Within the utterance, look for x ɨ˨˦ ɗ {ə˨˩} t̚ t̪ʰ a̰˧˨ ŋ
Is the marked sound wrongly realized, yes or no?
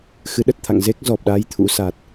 no